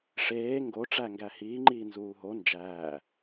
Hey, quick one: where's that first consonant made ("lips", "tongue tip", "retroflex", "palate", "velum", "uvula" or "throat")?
retroflex